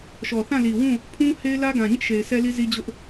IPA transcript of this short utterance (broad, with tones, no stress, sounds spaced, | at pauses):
ʃ ɔ˨ θ ã˦˨ l i˨ w ũ˦˨ | pʰ ũ˦ h e˦ ɪ̯ l ä˦ ɡ ã˨ ɲ ɪ˦ ʔ ʃ e˨ ɪ̯ s ɛ˦ l i˦ z i˦ d͡ʑ ʊ˦ ʔ